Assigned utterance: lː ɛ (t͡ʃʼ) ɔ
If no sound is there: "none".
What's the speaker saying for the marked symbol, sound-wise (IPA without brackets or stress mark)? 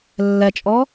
t͡ʃʼ